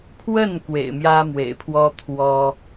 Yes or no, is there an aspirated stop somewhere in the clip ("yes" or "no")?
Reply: yes